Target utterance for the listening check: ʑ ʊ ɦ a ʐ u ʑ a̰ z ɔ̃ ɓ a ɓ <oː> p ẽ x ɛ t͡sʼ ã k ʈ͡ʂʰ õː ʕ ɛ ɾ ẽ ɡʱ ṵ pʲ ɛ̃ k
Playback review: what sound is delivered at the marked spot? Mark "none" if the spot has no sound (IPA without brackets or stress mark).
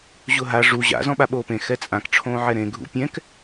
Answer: oː